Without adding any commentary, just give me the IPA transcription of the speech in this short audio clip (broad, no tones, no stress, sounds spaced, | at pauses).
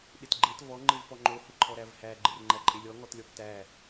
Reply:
ɗ ɪ t ɡ͡ǃ e t v ɔ ŋ͡ǃ ɪ v p ɔ ŋ͡ǃ o h ɪ ǃʰ ɔ ɾ æ v h æ ɡ͡ǃ ɪ r ŋ͡ǃ æ ǃʼ e lʲ ɔ ŋ ɔ t lʲ ɔ p t æ